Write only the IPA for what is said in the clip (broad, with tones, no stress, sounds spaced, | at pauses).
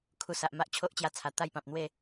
kʰ u˨˩ s a˨ ʔ m a˦ ʔ t͡ɕʰ o˦ ʔ t͡ɕ j a˧ t͡sʰ a˨˩ t̪ a˥˧ j p ã˨ p̚ n̪ w e˥˧